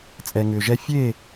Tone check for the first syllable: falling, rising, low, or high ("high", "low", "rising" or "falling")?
low